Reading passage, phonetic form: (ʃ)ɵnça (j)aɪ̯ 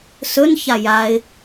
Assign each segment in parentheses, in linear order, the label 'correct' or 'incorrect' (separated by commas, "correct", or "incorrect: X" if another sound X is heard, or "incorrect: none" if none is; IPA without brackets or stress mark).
incorrect: s, correct